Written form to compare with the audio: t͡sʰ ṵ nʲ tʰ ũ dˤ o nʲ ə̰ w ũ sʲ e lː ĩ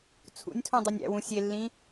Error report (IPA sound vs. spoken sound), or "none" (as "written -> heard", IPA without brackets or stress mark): ə̰ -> æ̰